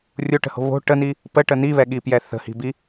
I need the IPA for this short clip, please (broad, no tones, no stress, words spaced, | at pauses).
rʲoʈə̤ho̤ βo̤ ʈəni | pəʈə niβɛɠipjɛ θə̤hi̤bi